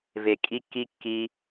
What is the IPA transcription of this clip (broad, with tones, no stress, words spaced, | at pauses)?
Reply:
ve˨ kʼi˧kːi˧ kːi˧